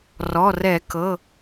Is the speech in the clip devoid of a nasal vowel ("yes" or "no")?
yes